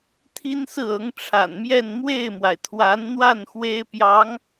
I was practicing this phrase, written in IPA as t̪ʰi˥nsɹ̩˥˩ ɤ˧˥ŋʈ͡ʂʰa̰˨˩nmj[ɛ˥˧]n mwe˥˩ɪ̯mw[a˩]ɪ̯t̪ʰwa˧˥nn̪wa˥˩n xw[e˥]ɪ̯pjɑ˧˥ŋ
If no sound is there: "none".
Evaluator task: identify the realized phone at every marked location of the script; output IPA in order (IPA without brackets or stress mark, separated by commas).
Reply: ɛ˥˧, a˩, e˥